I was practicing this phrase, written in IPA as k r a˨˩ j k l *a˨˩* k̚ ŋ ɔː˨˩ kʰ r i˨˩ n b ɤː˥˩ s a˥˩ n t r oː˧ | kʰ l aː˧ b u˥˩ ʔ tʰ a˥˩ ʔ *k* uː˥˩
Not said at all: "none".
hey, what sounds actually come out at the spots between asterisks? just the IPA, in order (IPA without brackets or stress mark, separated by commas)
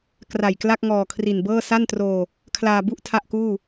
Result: a˥˩, k